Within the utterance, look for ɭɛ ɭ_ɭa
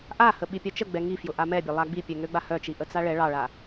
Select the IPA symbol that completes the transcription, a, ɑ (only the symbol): ɑ